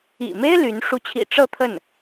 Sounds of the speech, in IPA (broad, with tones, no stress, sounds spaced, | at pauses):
ḭ˨˩ m e˥ ɪ̯ l y˧˥ n ʂ u˧˥ t͡ɕʰ ḭ˨˩ ʈ͡ʂ ɤ˥˧ t̪ʰ ə˥˩ n